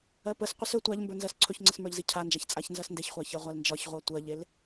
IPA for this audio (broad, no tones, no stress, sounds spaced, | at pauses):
ɜ p ə s qʷ i s ɵ tʷ a ʎ m b ə˞ n z ɜ s ǀʰ ɵ ç ŋ͡ǀ ə s m ə˞ ʎ z i cʰ a n d͡ʒ a ç t͡sʼ a ç n z ɜ s n d e ç χʷ a ç ɜ ʁʷ a l n d͡ʒ ɒ ç ʁʷ ɜ tʷ ɜ ʎ e l